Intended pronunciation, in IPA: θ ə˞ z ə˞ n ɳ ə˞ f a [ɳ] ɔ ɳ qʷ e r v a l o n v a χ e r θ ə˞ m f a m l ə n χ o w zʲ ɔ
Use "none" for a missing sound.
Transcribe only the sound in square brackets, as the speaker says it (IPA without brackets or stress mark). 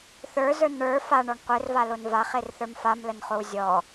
ɳ